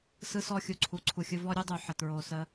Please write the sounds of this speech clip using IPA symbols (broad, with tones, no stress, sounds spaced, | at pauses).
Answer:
s ɯ˧ s ɔ˧ xʲ u˨ ǀʰ u˨ ǀʰ u˨ xʲ ɯ˧ v ɔ˦ ɾʲ u˦ dˤ u˨ ħ ə˨ t ɹ o˨ s ə˧